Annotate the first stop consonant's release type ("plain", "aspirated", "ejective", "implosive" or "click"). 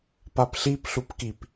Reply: plain